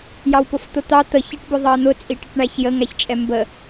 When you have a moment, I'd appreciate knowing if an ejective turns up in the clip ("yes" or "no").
yes